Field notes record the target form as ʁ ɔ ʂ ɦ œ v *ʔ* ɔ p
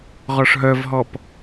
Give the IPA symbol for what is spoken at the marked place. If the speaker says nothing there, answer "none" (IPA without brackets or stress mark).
ɦ